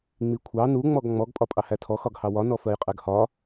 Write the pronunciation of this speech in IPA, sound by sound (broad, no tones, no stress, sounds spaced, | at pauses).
ŋ͡m i kʷʰ ɑ n u ŋ͡m ɔ ɡ ŋ͡m ɔ ɡ pʼ ɒ pʼ ɑ h æ tʰ ɔ x ɒ ɡ h ɑ w ɒ n ɔ f ɜ j qʼ ɛ ɡ h ɒ